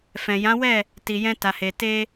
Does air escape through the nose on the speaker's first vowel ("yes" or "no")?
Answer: yes